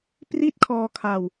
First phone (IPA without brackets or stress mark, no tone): p